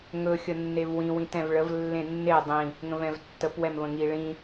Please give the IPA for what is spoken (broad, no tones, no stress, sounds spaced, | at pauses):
ŋ ɵ xʲ ə nː e v w ĩ w ĩ t ɛ̃ v ɭ ə v lː ẽ nː e dˤ ĩ | ŋ ə̃ v ɛ̃ v tː ə p w ɛ m v ə̃ ŋ i ɭ ĩ